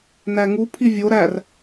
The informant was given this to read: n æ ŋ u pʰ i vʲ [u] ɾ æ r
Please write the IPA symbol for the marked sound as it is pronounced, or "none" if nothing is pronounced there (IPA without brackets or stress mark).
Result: o